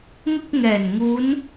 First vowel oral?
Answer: yes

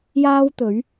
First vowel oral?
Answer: yes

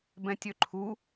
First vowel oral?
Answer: no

